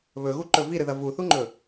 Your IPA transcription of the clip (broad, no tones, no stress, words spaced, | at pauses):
βɵɣuǃɵ viɾɨðɐ vuθuŋ͡ǃɵ